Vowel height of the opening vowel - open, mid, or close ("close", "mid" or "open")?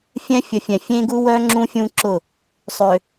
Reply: mid